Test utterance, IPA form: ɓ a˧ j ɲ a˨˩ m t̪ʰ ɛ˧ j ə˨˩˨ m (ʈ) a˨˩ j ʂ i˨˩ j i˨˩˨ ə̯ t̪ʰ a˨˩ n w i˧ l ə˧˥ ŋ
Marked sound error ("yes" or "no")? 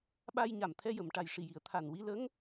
no